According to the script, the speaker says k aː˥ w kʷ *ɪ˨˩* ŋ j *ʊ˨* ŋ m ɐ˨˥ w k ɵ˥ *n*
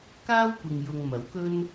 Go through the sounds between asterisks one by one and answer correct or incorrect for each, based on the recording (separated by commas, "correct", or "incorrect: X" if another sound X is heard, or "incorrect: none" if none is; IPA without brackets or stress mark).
incorrect: ɪ˨, correct, correct